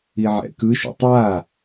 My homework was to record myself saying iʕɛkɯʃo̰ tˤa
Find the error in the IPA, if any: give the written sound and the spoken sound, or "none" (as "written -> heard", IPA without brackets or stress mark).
ɛ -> ɛ̰